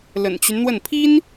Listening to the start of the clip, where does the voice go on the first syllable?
low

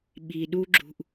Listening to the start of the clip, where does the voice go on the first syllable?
low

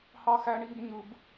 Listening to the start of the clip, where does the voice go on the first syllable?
high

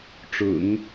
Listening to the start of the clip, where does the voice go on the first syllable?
low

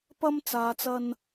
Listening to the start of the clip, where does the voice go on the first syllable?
high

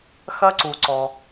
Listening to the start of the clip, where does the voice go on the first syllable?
high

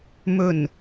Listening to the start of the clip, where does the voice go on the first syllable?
low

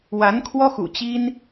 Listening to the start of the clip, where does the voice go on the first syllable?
rising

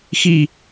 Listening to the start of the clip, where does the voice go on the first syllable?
falling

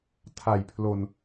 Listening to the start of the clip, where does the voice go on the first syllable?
low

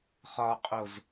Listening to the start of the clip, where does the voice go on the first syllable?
low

